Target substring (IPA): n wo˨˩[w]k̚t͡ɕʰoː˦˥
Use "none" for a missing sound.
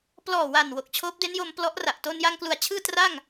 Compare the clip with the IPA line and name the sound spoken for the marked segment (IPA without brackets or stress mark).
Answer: none